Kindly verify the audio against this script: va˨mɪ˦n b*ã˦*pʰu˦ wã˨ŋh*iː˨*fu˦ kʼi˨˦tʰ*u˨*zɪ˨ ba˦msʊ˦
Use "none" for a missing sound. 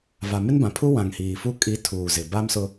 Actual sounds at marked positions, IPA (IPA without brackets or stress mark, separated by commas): ã˨, iː˨, uː˨